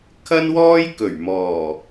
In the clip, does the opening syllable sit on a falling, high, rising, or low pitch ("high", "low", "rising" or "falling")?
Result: high